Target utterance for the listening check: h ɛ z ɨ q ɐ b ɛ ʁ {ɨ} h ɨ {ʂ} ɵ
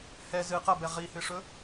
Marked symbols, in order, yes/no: no, yes

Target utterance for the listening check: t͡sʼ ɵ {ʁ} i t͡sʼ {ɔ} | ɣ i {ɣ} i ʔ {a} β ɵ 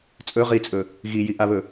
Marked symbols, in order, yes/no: yes, no, no, yes

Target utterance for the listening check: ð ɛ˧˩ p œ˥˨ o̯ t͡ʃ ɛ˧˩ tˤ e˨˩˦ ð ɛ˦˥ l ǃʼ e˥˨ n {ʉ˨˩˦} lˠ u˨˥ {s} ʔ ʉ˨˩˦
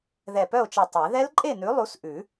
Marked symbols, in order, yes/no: no, yes

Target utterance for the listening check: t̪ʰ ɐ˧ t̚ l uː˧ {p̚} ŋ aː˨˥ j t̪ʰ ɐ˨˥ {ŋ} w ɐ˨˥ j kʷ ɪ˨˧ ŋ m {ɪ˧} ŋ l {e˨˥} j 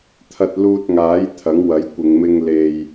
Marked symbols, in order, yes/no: no, yes, yes, no

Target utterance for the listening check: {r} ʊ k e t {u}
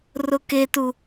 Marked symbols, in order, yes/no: yes, yes

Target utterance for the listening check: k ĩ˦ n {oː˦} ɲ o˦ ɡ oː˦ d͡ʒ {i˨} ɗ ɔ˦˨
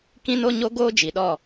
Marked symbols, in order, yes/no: no, yes

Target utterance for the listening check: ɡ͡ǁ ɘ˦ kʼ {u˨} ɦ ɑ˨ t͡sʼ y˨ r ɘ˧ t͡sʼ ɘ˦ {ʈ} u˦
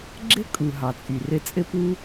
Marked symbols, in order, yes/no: yes, no

